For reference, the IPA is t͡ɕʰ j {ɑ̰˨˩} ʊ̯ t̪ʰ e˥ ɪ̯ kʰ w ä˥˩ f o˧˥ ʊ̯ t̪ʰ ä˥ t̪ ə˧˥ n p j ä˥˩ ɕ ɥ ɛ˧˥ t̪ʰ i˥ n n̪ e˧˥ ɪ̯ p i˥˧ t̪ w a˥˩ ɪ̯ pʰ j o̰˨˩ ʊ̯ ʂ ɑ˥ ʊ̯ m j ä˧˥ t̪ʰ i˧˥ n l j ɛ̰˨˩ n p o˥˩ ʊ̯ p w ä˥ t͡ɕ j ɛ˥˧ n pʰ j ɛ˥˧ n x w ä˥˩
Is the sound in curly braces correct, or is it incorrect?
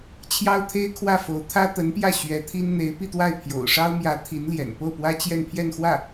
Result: incorrect